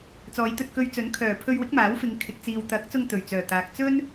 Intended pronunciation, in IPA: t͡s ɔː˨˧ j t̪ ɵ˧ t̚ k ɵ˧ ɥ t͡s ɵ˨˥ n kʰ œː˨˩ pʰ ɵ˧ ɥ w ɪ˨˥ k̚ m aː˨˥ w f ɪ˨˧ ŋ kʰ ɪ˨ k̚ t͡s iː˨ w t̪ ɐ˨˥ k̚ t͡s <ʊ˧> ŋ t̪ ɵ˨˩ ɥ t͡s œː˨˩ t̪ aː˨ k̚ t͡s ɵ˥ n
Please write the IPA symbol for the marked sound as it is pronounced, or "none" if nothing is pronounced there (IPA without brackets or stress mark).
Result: ʊ˧